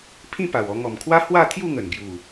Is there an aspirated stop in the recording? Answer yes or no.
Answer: yes